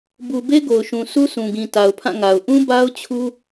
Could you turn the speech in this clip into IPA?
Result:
b u˨ b e˦ ɡ o˨ ʊ̯ ʃ ũ˨ sʰ u˦ sʰ ũ˨ ɡ ĩ˨ t a˨ ʊ̯ pʰ ã˦˨ ŋ a˨ ʊ̯ ʔ ũ˦ b a˦ ʊ̯ t͡ɕʰ u˦

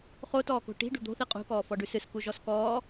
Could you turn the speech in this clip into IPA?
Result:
χ o t ɔː k o̤ ʈ i̤ ɖ ṳ d̪ o̤ θ i qʼ ṳ k ɔː f ɔ ɖ ʉ s ɨ s k u ʒ ɔ s k ɔː

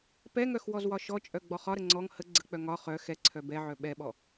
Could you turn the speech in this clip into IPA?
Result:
p ɛ ŋ œ x w ɔ z w ɒ ʃ ɔ t͡ʃʼ œ ɡ͡b ɔ χ ɒ ɾ ə ŋ͡ǀ ɔ ŋ h ə ɡ͡ǀ ə k͡p œ ŋ ɒ χ œ x ɛ ǀʰ œ b ɛ ʕ œ ɓ ɛ ɓ ɔ

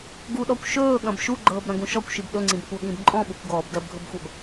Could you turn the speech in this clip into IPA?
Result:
ɡ u ɗ ɔ kʷ ʃ ɵː ɠ ɐ̃ b ʃ u ɡ͡ǃ ɤː b ɾ ɐ̃ ɡ ũ ʃ ɔ kʷ ʃ i b ɗ ɵ ŋ͡ǀ ĩ b kʷ ɤ ɠ ĩ b ǃʼ ɔ̃ ɓ u kʷ ɡ ɔː b d ɜ b ɡʱ ɵ b xʷ ɜ b

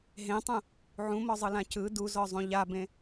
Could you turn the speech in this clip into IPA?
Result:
ɦ ẽ tˤ ũ | ʕ ũ m ɔ zˤ ɯ l ã c ɯ d u z ɔ zˤ ũ ʎ a b ẽ

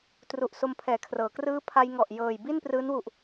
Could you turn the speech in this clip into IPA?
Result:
t r u˨˩ ʔ s o˧ m pʰ ɛː˨˩ kʰ r ɤː˩˦ k r ɯː˦˥ pʰ a˧ j ŋ ɔ˨˩ ʔ j ɤː˨˩ j b i˥˩ n p r ɯː˦˥ n w u˨˩ ʔ

